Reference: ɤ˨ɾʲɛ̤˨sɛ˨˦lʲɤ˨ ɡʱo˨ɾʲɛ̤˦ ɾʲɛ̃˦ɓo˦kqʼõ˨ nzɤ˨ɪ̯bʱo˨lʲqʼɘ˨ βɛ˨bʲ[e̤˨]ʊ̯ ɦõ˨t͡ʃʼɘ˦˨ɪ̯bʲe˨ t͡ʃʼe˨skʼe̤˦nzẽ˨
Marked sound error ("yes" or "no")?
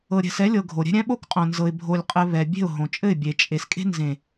yes